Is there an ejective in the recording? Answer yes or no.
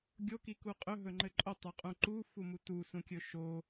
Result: yes